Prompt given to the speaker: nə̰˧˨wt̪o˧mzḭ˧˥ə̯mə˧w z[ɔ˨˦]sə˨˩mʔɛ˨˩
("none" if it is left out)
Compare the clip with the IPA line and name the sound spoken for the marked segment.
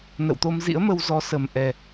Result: ɔ˨˦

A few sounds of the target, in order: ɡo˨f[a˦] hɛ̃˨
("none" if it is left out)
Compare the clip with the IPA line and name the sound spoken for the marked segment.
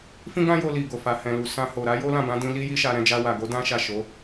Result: a˨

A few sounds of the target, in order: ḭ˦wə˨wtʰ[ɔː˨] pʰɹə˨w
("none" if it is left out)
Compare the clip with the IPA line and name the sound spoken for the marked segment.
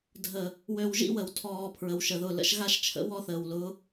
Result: ɔː˨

